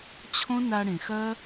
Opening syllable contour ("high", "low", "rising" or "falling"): high